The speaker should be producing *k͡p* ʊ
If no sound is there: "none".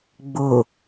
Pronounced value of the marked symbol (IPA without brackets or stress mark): ɡ͡b